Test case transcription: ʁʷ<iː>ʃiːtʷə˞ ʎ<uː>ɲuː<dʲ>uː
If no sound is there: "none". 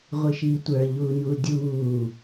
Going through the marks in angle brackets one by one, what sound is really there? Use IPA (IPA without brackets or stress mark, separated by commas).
i, uː, dʲ